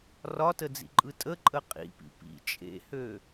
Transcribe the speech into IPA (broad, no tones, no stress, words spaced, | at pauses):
rɒtəd͡zḭǃʼɯ tʼəǃʼə qʼḭpḭ pḭ t͡ʃʼḛhø